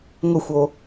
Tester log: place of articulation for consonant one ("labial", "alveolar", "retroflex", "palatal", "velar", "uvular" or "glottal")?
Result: velar